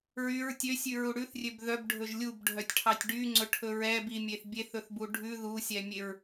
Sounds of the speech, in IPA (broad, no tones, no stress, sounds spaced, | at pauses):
ɹ y ɹ tʲ ø sʲ ʉ ɹ u ɽ ʉ θ rʲ ø b ð œ b ɖʱ ɵ ʒ lʲ u b ɖʱ œ tʲ ʈʰ ɑ tʲ ɖ y ŋ͡ǀ ɵ ʈʰ ɵ ɹ ɛ b i mʲ e θ bʲ e θ ɵ θ b u ɖʱ ʉ ð u sʲ ɛ mʲ e ɹ